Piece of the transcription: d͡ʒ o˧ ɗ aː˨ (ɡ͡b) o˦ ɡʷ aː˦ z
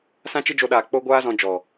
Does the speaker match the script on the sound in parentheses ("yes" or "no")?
no